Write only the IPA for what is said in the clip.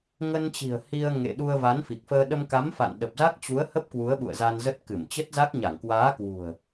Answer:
ŋə˧nt͡ɕi̤˨˩ə̯ hi˧ə̯ŋḛ˧˨ ɗu˧ə̯va˨˦nfi˨˩k̚fəː˧ ɗə˧mka˨˦mfa̰˧˨n ɗə˨˩p̚za˦˥k̚t͡ɕu˨˦ə̯hə˦˥p̚ kwu˨˦ə̯ɓṵ˧˨ə̯za˧nzə˦˥t̚ kɨ˧˩mt͡ɕə˦˥t̚za˦˥k̚ ɲa˧˩ŋkwaː˨˦ kwṳ˨˩ə̯

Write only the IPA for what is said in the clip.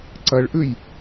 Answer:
ǀɐɭʔʉj

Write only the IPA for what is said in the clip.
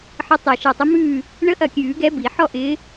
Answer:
ħə˧˥tˤe˧˩ ʃe˧˩tˤɪ˧˥mʉː˥˨ | ɳə˧˥ʔɐ˧˩kʲʉː˨˩˦ ɡɛ˧˥bi˨˩˦ ħɔ˥˨ ʔɪː˧˥

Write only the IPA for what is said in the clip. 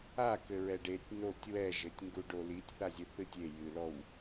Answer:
akɘɹɛɖ etʲ notʲ wɛʒɘtʲŋɡu ɖolitʲ θazʲɨθɨtʲ e jɨlɔw

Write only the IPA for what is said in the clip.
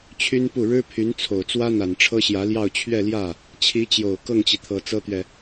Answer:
t͡ɕʰy˥npu˥˩ ɻɻ̩˥pʰy˧˥n t͡sʰo˨˩ʊ̯t͡swä˥ n̪a˨˩nʈ͡ʂʰɤ˥ɕjä˧˥ljɑ˥˧ʊ̯ t͡ɕʰɥɛ˥˧ljä˥˩ | t͡ɕʰi˧˥t͡ɕjo˨˩ʊ̯ kɤ˥˩ŋt͡ɕi˩t̪ʰɤ˨˩ t͡sɤ˥t̪ɥɛ˨

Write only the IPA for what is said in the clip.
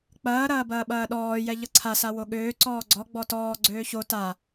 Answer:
k͡pɐːɾɐːbɐː ɓɐːɗɔːjɛ ʎʌǀʰasa woɠøː ǀɔːɡ͡ǀɔɡ͡bɔ tɔː ɡ͡ǀøːço ta

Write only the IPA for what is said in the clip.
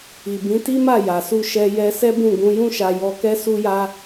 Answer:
i˨bĩ˨˦ti˦ma˦˨ ja˨su˧ ʃɛ˧jɛ˧ sɛ˦bũ˦˨ ɡũ˧ jũ˦ʃa˧ jɔ˧kɛ˦su˦ja˦

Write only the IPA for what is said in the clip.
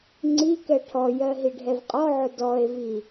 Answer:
ŋ͡ǀi kɛʈʰɔjɜ ɦiɖʱɛvqʼɔʕʊ dɔe̯vi

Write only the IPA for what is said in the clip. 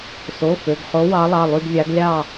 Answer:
so˩˧˩ fø˩˧˩ɡχo˨˦ wɑ˨˦lˠɑ˩˧˩lˠy˦˨ɡvʲɑ˨˦ɡ lʲɑ˦˨

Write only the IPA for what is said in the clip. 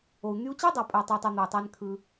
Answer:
o˨u̯n̪y˧u̯t͡ɕi˦ dˤɑ˨pʼæ˨tˤɯ˨u̯tˤæ˨ n̪ɯ˨u̯tˤæ˧nkʰɯ˧

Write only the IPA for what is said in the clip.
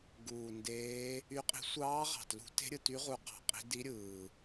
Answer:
ɡuː˨˩ndeː˧˥ | y˧˥qʼi̤˧˥ sʷɑː˧˥ʁɑ̤˨˩tlṳ˧˥ te̤˧˥ɾʲɯ˨˩ty˧˥ ʁu˧˥qɑ̤˨˩qʼi̤˧˥ di˧˥ɾʲɯː˨˩

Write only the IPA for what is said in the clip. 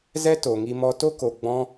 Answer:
zɛ˦to˨ŋi˧ mɔ˧to˦ ko˧ ɡ͡bɔ̃˦

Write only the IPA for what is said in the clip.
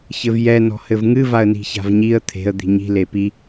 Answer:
çɘvjɛ nɔ̤hɘvŋɨ vaə̯ni̤ça̤vɲiə̯ t̪ʰe̤ə̯ d̪i̤ɲi̤ lepi

